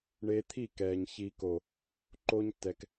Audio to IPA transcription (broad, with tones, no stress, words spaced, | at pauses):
ɳeː˧t̪ʰi˦˨kɛː˨ɲ çiː˨ko˨ | ǃoː˧ɲtːɛ˨k